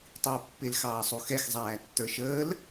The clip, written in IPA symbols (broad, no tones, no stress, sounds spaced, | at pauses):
tˤ i u̯ pː ɪ l x ɑː sˤ u x ɛ x zˤ æː tː ə˞ ʃ əː l